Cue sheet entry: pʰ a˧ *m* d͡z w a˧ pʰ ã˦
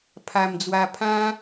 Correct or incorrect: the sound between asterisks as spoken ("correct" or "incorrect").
correct